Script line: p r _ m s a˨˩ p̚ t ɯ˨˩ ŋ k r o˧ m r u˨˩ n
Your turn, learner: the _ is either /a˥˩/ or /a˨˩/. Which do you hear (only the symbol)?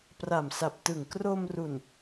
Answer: a˨˩